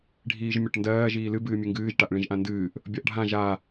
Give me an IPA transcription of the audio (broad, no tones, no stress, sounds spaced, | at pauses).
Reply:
ɖʱ iː ʒ mʲ ɒ ʈ n d ɜː ʒ iː l ɨ b ɨː mʲ ɨ ŋ ɡ ɨː ʒ ʈ a ʔ ɭ ĩ ʒ ʔ ã n d ɨː ʔ | bʲ ɒ ʔ ɖʱ ã ʒ a